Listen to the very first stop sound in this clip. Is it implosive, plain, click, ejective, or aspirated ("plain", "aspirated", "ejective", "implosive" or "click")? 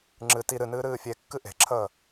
click